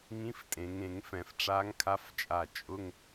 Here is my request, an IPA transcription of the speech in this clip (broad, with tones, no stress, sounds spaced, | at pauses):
ŋ ĩ˧˥ f tʼ ẽ˩˧ ŋ ẽ˧˩˧ ŋ f ɛ̃˧˩˧ f ʈ͡ʂ a˧˥ ŋ kʰ a˧˥ f t͡ʃʼ a˧˩ t͡ʃʼ ʊ˧˥˧ ŋ